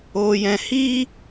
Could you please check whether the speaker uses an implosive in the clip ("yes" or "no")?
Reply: no